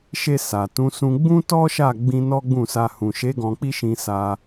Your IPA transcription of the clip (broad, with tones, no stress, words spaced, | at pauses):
ʃe˧ sa˨tũ˨˦sũ˧ ɡ͡bũ˦tɔ˦ʃa˦˨ɡ͡bĩ˧ nɔ˦ɡ͡bũ˦˨sa˧ hũ˨ʃe˨˦ ɡɔ̃˧k͡pi˦ʃĩ˧ sa˧